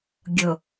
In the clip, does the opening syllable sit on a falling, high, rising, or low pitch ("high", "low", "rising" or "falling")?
low